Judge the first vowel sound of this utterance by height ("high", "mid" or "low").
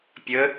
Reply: mid